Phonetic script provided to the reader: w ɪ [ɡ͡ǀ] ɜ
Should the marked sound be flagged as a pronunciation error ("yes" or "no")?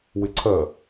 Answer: yes